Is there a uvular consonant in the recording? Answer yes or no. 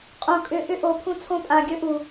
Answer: yes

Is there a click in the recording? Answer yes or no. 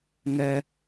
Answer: no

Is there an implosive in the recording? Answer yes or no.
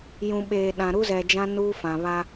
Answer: yes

